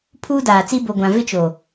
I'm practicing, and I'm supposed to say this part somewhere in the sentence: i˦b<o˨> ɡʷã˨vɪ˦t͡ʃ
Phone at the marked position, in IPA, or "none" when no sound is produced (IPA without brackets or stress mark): o˨